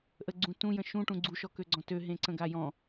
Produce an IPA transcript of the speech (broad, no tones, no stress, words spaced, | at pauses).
ʔəɡ͡ǀũ tũjə̃ ʃũʈũ ɡ͡ǀuʃɔkøɡ͡ǀɔ̃ tøɦẽǀə̃ɡa jɔ̃